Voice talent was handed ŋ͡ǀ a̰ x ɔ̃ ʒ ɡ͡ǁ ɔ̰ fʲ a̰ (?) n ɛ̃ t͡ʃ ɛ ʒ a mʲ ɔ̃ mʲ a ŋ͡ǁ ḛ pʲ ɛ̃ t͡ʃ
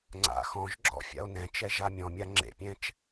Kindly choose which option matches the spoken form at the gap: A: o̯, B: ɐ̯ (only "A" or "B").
A